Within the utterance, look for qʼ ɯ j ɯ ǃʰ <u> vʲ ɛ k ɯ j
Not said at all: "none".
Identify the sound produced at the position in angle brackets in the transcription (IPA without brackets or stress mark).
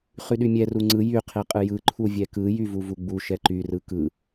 u